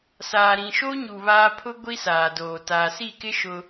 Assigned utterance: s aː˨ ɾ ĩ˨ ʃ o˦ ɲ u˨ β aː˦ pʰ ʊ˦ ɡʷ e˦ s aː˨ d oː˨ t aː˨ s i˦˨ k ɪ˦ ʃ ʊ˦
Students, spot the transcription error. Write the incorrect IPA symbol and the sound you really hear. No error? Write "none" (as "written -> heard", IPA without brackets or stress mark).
e˦ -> i˦